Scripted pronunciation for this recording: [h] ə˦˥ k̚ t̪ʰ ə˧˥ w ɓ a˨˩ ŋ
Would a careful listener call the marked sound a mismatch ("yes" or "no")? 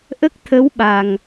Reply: yes